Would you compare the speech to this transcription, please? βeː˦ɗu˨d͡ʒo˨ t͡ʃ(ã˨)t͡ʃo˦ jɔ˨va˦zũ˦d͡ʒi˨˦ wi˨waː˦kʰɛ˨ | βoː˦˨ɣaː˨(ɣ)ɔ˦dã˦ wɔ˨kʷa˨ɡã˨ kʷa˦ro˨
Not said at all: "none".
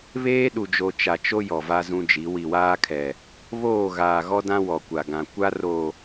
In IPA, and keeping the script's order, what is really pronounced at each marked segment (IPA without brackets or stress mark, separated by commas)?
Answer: a˨, ɣ